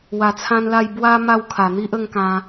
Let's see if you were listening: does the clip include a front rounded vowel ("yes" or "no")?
no